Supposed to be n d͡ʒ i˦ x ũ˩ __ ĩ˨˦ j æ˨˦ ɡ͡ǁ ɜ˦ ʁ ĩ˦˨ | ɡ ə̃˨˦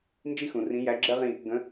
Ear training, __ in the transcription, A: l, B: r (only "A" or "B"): B